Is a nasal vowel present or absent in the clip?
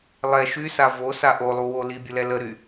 absent